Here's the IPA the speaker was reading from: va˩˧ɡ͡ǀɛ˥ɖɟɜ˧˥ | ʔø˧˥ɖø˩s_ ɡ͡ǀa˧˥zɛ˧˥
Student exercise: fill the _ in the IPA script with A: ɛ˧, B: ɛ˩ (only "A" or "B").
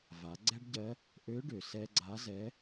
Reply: A